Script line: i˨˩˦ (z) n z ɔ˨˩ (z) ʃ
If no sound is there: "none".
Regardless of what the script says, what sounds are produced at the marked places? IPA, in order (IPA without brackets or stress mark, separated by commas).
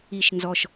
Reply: ʃ, none